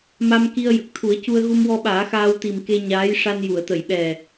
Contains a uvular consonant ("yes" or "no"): no